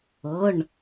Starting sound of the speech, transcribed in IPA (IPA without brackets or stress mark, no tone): ɤ